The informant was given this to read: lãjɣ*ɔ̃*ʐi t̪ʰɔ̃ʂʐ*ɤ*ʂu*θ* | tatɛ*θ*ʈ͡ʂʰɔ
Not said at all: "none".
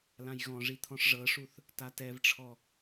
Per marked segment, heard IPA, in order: ɔ̃, ɤ, θ, v

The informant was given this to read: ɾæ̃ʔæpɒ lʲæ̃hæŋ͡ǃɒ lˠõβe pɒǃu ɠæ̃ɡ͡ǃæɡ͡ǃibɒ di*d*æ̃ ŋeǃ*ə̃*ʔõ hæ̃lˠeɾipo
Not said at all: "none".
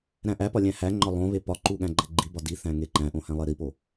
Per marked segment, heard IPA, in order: θ, æ̃

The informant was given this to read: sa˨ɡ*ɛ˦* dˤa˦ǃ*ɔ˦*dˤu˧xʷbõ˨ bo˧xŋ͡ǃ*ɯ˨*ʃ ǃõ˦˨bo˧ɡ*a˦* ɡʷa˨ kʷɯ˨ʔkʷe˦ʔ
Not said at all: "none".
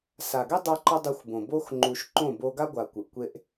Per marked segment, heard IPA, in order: ɛ˦, ɔ˦, u˨, a˦

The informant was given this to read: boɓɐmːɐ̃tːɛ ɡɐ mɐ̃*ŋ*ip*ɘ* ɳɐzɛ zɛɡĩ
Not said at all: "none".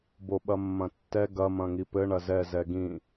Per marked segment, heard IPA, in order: ŋ, ɘ

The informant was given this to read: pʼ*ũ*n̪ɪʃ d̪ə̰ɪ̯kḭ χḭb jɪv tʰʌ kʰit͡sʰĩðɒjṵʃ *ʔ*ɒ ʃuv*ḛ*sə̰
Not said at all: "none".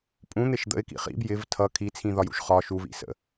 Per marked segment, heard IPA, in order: ũ, χ, ḭ

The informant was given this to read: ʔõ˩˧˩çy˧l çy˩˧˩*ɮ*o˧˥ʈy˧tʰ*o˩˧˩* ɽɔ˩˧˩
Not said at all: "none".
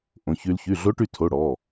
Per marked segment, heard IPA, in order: ɮ, o˩˧˩

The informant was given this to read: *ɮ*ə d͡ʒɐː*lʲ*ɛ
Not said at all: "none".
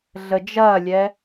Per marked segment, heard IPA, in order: ɮ, lʲ

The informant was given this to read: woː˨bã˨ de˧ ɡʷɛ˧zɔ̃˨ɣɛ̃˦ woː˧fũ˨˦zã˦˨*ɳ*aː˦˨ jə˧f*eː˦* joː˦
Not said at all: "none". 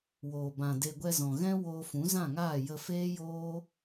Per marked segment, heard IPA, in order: ŋ, eː˦

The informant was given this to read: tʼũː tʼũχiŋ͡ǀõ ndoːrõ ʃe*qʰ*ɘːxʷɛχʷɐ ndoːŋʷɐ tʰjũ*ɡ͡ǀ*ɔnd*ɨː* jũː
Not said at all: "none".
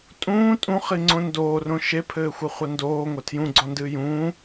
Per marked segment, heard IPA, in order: pʰ, ɡ͡ǀ, ɨː

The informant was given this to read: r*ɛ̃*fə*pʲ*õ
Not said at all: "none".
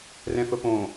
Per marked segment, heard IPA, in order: ɛ̃, p

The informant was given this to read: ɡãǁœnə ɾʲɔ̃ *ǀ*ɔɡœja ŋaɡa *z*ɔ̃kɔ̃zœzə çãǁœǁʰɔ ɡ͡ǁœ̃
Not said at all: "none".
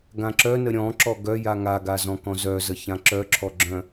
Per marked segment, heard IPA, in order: ǁ, z

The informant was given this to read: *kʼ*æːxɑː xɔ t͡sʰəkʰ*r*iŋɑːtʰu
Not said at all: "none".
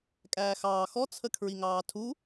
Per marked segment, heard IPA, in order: kʼ, ɹ

